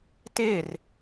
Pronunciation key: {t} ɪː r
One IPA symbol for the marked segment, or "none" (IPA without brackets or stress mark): t